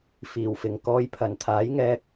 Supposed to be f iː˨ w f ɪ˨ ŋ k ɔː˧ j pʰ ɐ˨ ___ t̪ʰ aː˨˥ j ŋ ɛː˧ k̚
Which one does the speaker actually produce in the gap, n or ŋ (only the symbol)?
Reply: n